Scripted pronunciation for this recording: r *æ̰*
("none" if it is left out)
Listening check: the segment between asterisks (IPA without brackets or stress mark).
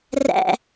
æ̰